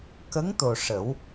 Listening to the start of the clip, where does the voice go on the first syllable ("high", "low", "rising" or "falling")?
rising